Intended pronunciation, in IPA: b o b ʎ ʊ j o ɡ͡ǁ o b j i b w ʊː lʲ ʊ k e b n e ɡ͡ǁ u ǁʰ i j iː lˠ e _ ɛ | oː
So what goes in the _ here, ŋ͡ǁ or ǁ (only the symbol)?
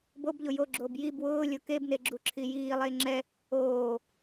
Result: ŋ͡ǁ